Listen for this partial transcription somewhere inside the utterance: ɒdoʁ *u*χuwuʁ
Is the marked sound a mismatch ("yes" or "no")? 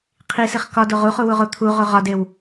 no